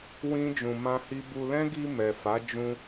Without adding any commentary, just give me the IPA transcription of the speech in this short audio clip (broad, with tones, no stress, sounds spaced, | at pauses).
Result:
w ĩ˦ d͡ʒ ũ˧ m ã˦ h i˦ b u˧ l ɛ̃˦ ɡ i˧ m ɛ˨ f a˨˦ d͡ʒ ũ˧